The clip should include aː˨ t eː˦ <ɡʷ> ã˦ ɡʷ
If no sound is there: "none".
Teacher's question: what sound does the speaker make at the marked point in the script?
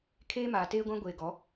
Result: ɡʷ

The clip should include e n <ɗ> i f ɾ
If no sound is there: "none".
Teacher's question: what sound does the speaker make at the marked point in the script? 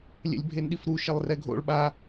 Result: ɗ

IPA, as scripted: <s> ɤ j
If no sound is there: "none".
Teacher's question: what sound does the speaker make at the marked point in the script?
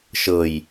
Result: ʃ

